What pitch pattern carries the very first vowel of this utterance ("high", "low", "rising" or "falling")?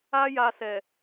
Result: high